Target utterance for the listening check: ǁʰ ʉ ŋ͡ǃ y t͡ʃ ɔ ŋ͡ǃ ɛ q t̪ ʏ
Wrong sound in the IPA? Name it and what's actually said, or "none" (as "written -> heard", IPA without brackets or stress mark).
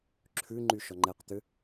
t͡ʃ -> ʃ